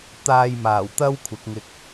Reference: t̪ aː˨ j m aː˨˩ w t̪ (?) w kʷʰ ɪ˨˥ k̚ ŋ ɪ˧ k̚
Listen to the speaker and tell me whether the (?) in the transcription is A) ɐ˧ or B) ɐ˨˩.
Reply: A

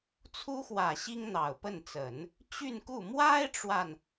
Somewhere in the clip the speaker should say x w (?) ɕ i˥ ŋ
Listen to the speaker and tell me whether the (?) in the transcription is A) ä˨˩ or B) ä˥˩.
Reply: A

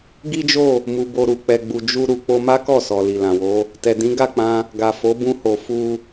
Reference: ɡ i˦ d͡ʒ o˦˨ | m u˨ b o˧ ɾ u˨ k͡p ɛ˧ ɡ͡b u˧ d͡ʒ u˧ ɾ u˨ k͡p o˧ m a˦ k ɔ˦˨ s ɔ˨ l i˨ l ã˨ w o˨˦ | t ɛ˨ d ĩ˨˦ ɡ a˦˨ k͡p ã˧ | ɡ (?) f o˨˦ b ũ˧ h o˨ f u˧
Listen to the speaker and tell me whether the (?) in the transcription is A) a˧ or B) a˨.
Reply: B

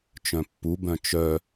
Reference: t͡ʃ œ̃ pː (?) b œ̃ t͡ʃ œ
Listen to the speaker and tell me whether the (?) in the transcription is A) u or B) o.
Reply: A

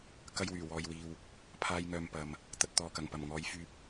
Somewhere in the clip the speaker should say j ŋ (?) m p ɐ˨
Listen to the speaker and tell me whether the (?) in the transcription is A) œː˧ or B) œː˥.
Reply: A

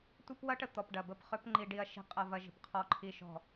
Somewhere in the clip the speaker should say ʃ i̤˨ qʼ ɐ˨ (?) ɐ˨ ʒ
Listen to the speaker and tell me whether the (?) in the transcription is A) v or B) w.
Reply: A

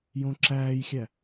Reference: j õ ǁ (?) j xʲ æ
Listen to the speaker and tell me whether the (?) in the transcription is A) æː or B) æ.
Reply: A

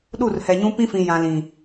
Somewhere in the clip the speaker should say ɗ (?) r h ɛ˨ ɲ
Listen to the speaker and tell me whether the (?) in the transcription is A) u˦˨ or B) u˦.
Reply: A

